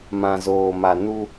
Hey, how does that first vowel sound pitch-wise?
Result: low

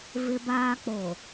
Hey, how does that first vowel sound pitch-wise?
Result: high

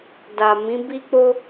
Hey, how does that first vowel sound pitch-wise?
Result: low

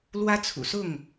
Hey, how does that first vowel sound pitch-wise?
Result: high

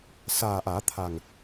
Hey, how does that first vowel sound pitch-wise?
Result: low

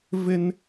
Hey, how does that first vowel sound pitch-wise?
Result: high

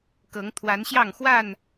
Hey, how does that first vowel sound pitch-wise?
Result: rising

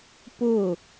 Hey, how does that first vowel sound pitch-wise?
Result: falling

